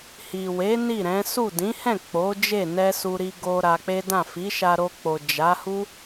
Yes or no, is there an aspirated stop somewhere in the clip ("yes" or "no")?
no